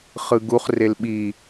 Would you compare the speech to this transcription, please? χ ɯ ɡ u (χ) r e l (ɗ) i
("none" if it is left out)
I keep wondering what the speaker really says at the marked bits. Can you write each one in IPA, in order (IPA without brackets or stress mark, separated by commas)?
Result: χ, ɓ